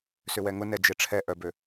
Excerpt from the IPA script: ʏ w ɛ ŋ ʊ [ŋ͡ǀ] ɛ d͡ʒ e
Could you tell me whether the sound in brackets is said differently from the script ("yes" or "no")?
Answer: yes